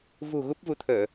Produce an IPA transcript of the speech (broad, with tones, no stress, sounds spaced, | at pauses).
v ṳ˨˩ ɣ u˦˥ p̚ v u˨˦ t̪ʰ əː˧˩˨